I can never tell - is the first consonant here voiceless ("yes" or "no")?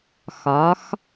yes